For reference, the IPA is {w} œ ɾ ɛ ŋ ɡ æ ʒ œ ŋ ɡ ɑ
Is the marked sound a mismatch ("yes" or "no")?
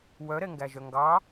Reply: no